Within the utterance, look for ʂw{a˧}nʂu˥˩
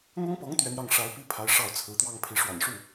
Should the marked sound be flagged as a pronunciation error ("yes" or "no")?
yes